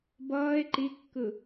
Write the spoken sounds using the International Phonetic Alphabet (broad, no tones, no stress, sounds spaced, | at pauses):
b ʌː e̯ ǃ i kː ɯ